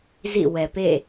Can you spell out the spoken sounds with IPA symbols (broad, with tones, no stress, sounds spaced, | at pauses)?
z ḭ˦˨ w ɛ˨ p ḛ˦˨